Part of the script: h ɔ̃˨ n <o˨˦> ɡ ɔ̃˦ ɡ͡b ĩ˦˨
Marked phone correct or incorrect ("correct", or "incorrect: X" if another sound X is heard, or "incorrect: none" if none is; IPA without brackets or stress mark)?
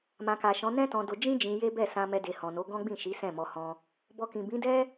correct